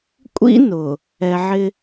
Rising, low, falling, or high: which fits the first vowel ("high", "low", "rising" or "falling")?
high